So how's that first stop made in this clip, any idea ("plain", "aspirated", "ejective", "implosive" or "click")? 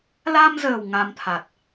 aspirated